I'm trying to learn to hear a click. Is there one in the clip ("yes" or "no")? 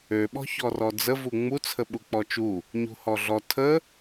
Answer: no